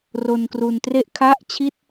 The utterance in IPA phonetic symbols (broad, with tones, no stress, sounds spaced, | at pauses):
r o˧ n k r u˧ n t r e˥˩ ʔ kʰ a˥˩ ʔ t͡ɕʰ i˥˩ t̚